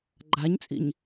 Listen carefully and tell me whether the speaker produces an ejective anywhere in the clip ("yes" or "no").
yes